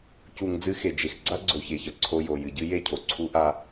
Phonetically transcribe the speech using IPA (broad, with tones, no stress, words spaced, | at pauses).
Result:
cu˨ŋ d͡zɨ˦xe˨d͡ʒe˨x ɡ͡ǀa˦ɡ͡ǀo˨çe˨çɐ˨ ǀʰo˦ jo˨ jɨ˨ɟɨ˦ je˦˨cʰo˨ ǀʰu˦ʔa˦